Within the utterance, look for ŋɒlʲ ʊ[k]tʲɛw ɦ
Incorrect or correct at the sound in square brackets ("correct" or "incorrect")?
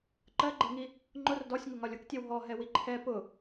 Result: correct